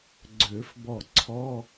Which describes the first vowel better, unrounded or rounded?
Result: rounded